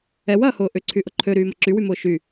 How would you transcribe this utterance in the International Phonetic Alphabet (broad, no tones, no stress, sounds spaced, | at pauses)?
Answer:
ɛ w ɐː h ʊː ʔ ʏ ǀʰ y ʔ ʊ ǃʰ ø ɾ yː m ɐ ǁ y w y m ʊː ʃ y